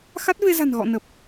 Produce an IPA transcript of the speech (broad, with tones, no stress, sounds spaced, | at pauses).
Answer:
x a˦˥ t̚ v e˧ z a̤˨˩ n ɣ ɔ̰˧˨ n ə˨˩ p̚